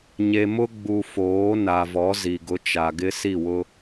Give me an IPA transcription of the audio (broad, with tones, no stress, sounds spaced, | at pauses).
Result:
ɲ e˨ m ʊ˦ ɡ͡b u˨ f oː˨˦ n a˨ v ɔ˨˦ z i˨ ɡ ʊ˨˦ t͡ʃ a˨ ɡ ɪ˦ s i˦˨ w ʊ˦